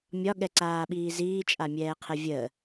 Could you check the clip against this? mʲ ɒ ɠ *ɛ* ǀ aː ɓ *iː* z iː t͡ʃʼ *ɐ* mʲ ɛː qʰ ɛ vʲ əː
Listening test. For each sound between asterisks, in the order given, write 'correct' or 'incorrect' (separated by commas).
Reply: correct, correct, incorrect